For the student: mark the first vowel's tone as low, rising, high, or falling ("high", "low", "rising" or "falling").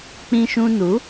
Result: high